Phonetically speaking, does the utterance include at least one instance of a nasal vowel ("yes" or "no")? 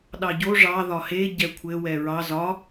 no